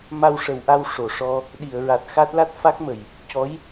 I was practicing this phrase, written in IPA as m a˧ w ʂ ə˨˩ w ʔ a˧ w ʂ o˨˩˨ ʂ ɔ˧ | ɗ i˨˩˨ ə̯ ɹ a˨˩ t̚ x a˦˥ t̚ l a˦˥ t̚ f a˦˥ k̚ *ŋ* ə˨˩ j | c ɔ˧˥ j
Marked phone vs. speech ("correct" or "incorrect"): incorrect